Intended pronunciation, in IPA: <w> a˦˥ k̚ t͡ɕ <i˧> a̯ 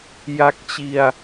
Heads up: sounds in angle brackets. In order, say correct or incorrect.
incorrect: j, correct

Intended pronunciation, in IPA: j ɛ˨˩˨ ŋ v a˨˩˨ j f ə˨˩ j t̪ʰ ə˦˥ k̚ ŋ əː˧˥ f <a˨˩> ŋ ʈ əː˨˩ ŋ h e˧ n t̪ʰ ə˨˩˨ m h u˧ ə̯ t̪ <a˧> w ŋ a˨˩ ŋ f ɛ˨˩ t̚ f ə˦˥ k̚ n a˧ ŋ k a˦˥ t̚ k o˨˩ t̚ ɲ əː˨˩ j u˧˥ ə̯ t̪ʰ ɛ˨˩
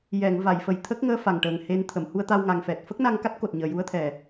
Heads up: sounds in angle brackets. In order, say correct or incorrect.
correct, correct

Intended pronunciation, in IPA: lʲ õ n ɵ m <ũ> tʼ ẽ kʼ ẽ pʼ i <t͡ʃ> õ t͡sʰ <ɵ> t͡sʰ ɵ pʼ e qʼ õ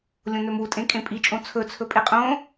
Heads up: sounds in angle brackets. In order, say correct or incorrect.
incorrect: u, incorrect: t͡ʃʼ, correct

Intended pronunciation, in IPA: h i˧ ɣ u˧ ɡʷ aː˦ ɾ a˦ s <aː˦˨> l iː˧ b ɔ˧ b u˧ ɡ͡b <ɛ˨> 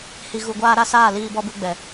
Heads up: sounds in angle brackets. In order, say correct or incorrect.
correct, correct

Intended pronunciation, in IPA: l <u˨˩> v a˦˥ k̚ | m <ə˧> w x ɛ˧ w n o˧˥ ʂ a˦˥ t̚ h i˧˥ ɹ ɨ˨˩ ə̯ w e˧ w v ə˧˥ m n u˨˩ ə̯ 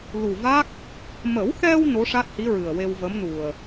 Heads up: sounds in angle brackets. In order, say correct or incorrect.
correct, incorrect: ə˨˩˦

